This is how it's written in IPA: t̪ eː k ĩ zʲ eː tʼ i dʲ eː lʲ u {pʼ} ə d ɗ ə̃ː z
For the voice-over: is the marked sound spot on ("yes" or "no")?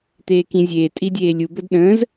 no